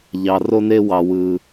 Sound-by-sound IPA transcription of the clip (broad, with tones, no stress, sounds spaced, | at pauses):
ʎ ɑ˧ r o˦ n e˦ w ɑ˧ w ɯ˧